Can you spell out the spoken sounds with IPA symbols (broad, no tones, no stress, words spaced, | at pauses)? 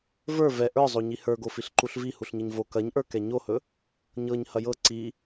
və˞ vɛ ʔə˞zˤo ɲihə˞ɡo fiɬǃuɬvi huɬɲɐɲvo kɐɲʔə˞kɛ ɲohɵ | ɲɤɲ hɐjɤ ǀi